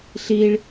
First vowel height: high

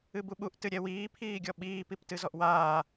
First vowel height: high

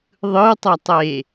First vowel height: high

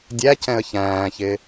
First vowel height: low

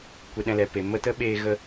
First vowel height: mid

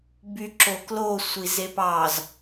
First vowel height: high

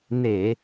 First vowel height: mid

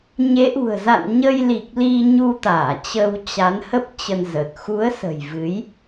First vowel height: mid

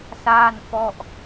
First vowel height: low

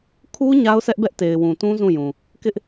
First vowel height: high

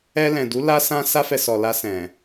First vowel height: mid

